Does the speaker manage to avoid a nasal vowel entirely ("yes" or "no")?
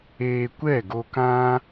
no